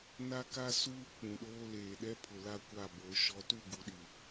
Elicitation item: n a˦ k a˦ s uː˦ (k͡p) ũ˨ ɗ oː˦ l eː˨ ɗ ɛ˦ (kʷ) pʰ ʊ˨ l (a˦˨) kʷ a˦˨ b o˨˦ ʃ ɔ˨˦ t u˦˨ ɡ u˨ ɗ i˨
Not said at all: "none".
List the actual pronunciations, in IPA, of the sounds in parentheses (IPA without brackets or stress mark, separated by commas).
k͡p, none, a˦˨